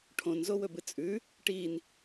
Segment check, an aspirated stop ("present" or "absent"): present